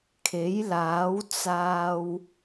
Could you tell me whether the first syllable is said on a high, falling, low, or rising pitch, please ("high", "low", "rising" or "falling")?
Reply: rising